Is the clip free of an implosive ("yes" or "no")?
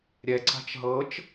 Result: yes